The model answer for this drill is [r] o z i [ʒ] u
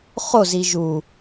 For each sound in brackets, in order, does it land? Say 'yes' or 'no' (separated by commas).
no, yes